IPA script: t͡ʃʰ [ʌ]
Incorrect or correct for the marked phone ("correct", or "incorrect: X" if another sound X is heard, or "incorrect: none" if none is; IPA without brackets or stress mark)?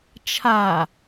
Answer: incorrect: a